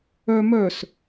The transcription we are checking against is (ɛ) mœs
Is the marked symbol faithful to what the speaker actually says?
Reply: no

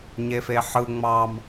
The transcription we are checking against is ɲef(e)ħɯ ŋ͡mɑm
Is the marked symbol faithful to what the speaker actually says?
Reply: yes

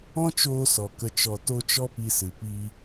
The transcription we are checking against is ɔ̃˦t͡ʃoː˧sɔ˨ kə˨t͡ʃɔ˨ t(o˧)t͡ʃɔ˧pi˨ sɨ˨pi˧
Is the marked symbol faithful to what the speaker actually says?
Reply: yes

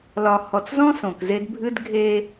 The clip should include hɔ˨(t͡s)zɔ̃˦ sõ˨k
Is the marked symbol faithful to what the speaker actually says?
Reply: yes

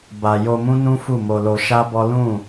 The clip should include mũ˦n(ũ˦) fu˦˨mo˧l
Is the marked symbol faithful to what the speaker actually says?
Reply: yes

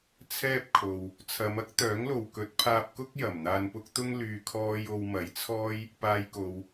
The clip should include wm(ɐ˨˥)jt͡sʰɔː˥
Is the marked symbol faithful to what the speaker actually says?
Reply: yes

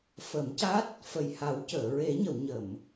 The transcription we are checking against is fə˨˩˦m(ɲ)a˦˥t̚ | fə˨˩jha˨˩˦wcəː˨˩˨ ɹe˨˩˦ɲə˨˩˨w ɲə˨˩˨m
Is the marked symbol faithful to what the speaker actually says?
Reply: no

